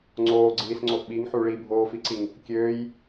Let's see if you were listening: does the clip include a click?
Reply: yes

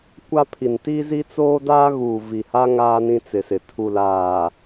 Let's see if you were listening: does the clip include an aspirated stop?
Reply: yes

